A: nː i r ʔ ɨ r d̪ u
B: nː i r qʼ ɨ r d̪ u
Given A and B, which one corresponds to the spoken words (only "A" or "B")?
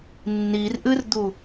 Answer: A